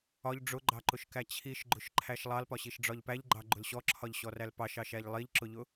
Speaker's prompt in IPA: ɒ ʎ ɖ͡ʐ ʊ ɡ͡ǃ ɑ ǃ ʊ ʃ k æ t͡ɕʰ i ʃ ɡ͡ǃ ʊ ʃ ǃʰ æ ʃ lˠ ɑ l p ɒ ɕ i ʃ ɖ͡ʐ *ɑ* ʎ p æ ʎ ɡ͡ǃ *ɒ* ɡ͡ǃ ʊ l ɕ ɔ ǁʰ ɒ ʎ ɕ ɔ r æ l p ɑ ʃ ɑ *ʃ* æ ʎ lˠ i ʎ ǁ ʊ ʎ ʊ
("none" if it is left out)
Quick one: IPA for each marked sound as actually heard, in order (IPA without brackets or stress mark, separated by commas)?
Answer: ɒ, ɑ, ʃ